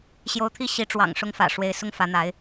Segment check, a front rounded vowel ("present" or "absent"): absent